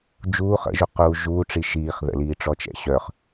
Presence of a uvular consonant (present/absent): present